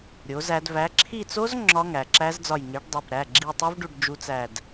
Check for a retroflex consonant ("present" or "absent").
present